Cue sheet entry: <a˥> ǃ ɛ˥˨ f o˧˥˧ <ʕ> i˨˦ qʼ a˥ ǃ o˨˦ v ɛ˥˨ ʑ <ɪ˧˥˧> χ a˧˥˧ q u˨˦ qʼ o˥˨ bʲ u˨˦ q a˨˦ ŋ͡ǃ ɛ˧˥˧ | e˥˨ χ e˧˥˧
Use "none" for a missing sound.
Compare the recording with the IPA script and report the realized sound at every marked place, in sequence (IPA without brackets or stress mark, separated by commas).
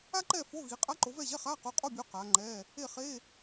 a˥, ɣ, ɛ˧˥˧